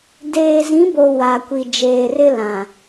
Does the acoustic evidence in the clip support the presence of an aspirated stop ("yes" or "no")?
no